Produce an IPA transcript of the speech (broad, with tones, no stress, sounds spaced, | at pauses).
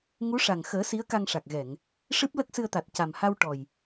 ŋ u˧˥ ʂ a˨˩ ŋ x əː˨˩˦ s i˧˥ ə̯ k a˧ ŋ ʂ a˨˩ k̚ ɣ ɛ˨˩˨ ŋ | ʂ ɨ˦˥ p̚ l ə˦˥ k̚ s ɨ˧ ə̯ t̪ a˨˩ t̚ c a˨˩ m h a˧ w ʈ ɔ˨˩ j